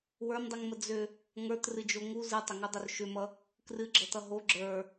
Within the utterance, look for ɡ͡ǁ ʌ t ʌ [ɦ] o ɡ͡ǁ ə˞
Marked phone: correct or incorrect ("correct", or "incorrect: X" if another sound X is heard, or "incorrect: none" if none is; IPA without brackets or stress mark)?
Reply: correct